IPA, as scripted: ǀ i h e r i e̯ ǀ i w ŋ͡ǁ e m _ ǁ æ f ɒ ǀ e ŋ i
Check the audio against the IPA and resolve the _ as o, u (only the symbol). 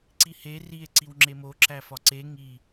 o